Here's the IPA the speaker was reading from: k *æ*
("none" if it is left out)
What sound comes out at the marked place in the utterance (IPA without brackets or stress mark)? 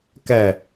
æ